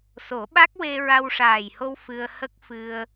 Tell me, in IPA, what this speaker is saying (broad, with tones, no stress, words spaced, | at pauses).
so˨˩˦ɓa˦˥k̚ we˧ ɹa˧wʂaː˨˩jho˧w fɨ˧ə̯ hə˦˥k̚fɨ˧ə̯